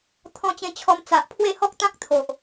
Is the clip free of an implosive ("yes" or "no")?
yes